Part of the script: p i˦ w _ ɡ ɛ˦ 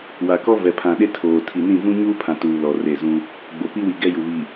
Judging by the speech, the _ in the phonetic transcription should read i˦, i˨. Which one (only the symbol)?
i˨